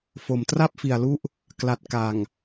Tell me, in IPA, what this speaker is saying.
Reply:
f o˨˩ m t r a˥˩ p̚ f i˨˩ a̯ l u˦˥ ʔ | k l a˨˩ t̚ k a˨˩ ŋ

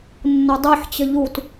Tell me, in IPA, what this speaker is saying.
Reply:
nː ʊ dˤ e ħ t͡ɕ ə ʎ u t

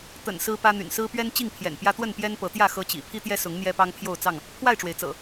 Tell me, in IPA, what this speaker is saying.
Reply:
t̪ ə̰˨˩ n s ɹ̩˦ p ä˦ n̪ y̰˨˩ n s ɹ̩˦ p ɥ ɛ˦ n t͡ɕ i˥˨ ŋ pʰ j ɛ̰˨˩ n p j ä˦ t̪ w ə˥˨ n p j ɛ˦ n p ɤ˨˦ t̪ j ä˥˨ x ɤ˦ t͡ɕ ḭ˨˩ pʰ i˦ t̪ j ɛ˦ s ʊ˨˦ ŋ n̪ j ɛ˦ p ɑ˦ ŋ pʰ j o˥˨ ʊ̯ t͡s ɑ˥˨ ŋ | pʰ w a˥˨ ɪ̯ ʈ͡ʂ w e˩ ɪ̯ t͡s ɤ̰˨˩

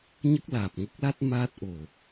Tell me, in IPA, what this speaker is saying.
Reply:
ɲ ə˦˥ k̚ l aː˨˩ p̚ ŋ ə˦˥ k̚ l a˦˥ t̚ m aː˦˥ t̚ ʔ o˨˩

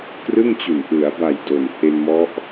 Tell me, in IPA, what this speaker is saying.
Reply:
k r ɯ˥˩ ŋ t͡ɕ u˨˩ n ʔ ɯ˩˦ a̯ b a˨˩ j d o˨˩ n h e˧ n m ɔ˦˥ ʔ

